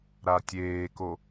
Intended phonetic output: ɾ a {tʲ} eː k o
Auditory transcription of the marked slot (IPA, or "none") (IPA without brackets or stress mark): tʲ